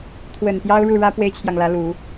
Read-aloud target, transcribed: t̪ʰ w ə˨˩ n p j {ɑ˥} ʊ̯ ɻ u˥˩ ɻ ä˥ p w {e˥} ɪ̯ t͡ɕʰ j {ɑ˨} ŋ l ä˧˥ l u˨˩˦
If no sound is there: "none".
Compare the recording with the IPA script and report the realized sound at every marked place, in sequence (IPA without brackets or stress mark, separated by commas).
ɑ˥, e˥, ɑ˨